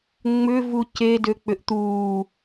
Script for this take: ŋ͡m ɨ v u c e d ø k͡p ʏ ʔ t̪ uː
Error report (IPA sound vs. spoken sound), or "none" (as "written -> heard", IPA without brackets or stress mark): ɨ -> ʏ